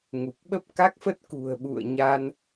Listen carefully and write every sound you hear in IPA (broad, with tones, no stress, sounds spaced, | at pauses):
ŋ u˨˩ k̚ ɓ ə˦˥ p̚ k a˦˥ k̚ f ə˦˥ t̚ k ṳ˨˩ ə̯ ɓ ṵ˧˨ ə̯ ɲ a˧ n